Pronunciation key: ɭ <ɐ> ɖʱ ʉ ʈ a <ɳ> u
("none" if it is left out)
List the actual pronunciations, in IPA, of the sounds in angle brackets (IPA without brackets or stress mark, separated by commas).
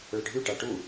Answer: ə, ʈ